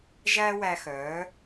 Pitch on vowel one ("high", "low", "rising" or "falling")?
high